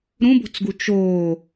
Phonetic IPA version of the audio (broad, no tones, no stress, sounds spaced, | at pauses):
ɾ ũ b o̤ t͡s ɡ u t͡ʃ oː